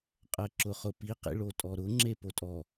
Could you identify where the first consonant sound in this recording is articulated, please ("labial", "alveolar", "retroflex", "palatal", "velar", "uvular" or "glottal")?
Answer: uvular